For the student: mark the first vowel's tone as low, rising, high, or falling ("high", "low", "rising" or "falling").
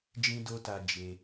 high